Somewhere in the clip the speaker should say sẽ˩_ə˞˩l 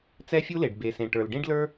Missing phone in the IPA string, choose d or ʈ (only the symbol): ʈ